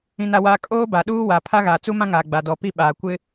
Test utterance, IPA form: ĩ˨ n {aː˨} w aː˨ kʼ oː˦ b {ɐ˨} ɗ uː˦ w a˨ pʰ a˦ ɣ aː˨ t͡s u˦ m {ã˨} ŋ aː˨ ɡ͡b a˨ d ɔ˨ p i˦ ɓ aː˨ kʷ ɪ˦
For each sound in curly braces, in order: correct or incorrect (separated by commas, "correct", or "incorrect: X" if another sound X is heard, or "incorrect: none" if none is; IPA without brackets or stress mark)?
incorrect: a˨, incorrect: a˨, incorrect: ã˦